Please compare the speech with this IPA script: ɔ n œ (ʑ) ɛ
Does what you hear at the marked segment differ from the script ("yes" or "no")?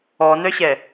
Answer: yes